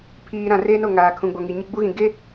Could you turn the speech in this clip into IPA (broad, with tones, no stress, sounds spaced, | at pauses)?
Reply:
pʰ iː˨ ɾ ã˨ r eː˦ n o˦˨ ŋ aː˨ kʰ ũ˨ ɡ͡b o˨ ŋ i˨ ɲ ɪ˦ ɡ͡b u˦ ɣ ĩ˨ ɡ e˦